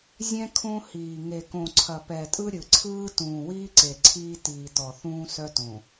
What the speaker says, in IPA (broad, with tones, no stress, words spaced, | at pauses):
zʲɛ̃˦ kʰõ˦hiː˨ ŋe˨kõ˨ ǀʰɐ˨pɛ˨tʼɯ˦ ɾʲɯ˨ǀʰɯː˦ tũː˨wiː˦ǀe˨ ǀʰiː˦ tiː˨tɔ˨θũː˦ sœ˦tõ˨